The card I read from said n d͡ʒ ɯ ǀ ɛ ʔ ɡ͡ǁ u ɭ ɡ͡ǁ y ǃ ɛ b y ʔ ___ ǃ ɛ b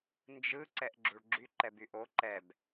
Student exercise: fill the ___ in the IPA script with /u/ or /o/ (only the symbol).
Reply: o